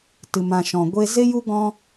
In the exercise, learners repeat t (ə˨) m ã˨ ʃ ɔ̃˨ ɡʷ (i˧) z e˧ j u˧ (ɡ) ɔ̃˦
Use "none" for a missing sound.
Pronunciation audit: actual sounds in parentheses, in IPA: ɨ˨, e˧, ɡ

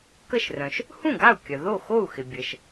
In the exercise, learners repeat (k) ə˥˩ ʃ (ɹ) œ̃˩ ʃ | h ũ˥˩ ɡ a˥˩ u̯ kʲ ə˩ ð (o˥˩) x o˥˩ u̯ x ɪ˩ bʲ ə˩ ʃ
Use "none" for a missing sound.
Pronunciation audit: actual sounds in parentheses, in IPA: k, r, o˥˩

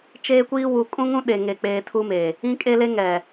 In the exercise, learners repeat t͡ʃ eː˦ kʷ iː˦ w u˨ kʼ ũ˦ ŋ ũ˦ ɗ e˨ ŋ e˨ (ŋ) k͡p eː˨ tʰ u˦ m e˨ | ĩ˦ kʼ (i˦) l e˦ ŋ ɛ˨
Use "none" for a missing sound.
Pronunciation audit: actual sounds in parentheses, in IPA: none, e˦

